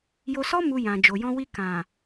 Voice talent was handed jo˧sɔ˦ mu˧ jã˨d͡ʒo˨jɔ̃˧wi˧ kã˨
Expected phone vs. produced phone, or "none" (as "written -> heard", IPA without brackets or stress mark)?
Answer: none